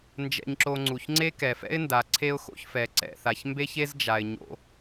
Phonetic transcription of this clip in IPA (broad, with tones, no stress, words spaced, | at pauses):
nd͡ʒɛ̰˧ɲǁo˧ ŋ͡ǀu˩çŋ͡ǀe˥ kɛ˩fɛ̰˥ɪ̯nda˩ ǀʰe˥ʊ̯xo̰˧çfɛ˩ ǀɛ̰˩θa˩ç mbe˥çe˥zd͡ʒa˩ɪ̯ ɲo̰˧